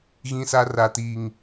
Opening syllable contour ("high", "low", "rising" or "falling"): high